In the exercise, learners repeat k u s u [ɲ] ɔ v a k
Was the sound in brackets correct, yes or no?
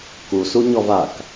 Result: yes